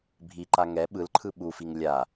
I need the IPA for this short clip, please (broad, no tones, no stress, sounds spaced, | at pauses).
bʱ i ǃ a ŋ ɛ ɓ ɯ l ǃʰ ɯ ɓ u f i ŋ lʲ a